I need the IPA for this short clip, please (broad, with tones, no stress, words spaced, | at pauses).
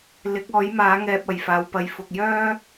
lɪ˨˥k̚ɔː˨˥jmaː˨˥ ŋɛː˧p̚ɐ˨˩jfaː˨˧w pɐ˨jfʊ˨k̚jœː˥